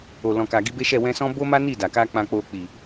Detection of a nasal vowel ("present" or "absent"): present